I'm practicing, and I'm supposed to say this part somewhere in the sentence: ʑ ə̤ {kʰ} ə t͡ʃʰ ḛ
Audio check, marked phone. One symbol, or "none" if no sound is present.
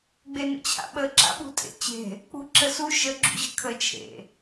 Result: kʰ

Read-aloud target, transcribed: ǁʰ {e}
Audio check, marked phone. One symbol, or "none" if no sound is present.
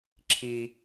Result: i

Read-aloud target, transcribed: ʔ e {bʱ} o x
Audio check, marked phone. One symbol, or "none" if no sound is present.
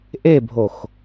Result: bʱ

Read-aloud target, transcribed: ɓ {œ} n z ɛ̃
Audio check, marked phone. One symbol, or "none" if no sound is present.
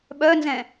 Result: œ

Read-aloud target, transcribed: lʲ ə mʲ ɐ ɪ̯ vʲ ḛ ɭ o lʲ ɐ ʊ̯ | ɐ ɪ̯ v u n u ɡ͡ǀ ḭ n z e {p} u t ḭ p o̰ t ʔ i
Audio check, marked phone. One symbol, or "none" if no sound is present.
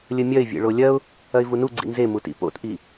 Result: m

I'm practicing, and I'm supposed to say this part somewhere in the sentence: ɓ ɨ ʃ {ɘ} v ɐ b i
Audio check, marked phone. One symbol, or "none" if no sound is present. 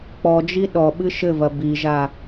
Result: ɘ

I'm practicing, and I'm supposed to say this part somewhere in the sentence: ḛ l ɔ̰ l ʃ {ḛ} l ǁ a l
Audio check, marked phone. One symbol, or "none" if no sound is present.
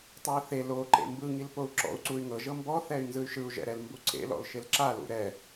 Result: e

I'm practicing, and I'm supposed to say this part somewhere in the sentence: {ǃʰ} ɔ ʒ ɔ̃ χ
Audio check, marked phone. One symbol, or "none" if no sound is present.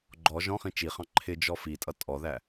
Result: ɡ͡ǃ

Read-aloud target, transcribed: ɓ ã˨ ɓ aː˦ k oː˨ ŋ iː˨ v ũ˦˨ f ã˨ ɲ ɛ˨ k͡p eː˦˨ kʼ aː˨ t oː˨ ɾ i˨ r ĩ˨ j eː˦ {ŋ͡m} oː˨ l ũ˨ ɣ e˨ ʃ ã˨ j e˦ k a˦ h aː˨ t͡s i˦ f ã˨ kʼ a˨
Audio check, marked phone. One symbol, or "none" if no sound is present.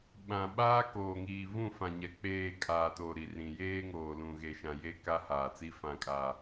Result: ŋ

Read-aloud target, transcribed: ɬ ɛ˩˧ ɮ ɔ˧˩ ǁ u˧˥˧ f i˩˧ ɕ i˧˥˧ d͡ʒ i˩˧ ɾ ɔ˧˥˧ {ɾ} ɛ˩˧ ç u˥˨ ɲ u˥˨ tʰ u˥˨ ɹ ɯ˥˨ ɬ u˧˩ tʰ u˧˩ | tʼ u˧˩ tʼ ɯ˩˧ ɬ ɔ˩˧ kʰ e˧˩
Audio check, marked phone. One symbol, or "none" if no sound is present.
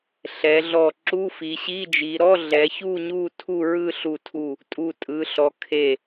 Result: ɮ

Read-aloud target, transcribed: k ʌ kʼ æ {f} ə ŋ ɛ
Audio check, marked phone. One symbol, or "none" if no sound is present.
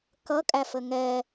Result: f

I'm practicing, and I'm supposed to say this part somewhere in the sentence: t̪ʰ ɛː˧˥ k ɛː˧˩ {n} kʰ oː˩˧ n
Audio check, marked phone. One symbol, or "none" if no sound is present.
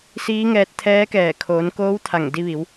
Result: none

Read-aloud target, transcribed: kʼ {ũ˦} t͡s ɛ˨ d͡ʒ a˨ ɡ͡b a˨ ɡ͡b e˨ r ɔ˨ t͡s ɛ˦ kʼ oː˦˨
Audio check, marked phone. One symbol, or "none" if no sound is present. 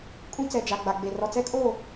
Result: ũ˦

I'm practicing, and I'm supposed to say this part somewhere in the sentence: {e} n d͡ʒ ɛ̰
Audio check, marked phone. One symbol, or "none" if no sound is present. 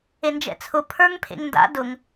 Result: e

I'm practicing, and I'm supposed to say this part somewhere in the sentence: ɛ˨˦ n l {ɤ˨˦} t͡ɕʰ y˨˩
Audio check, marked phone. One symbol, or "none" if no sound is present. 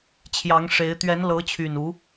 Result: ɤ˨˦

